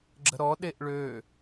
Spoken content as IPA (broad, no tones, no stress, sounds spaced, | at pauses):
ɡ͡ǁ ə̤ ɾ ɔ ɗ e ʔ ɭ ø